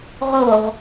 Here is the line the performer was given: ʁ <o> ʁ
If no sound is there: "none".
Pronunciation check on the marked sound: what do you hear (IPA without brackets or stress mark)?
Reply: o